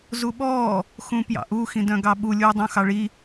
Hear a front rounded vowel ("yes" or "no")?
yes